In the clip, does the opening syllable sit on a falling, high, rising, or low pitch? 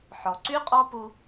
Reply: low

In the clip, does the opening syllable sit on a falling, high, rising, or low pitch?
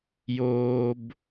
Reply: low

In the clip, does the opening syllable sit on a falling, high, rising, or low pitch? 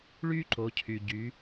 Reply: high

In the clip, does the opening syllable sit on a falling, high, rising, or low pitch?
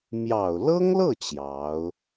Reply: low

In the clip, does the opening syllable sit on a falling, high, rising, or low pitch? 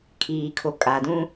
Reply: low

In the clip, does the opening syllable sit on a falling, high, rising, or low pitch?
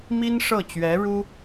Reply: high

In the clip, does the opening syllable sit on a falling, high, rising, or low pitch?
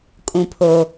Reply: low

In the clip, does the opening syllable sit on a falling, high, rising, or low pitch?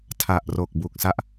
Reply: low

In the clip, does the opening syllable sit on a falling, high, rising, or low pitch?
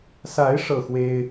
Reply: rising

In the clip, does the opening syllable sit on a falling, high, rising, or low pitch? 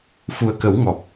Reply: low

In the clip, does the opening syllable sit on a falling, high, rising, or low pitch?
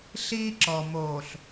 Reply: high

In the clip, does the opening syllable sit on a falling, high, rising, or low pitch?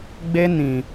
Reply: high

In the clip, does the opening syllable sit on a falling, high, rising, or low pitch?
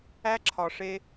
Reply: high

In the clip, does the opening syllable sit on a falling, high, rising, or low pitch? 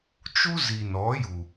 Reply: high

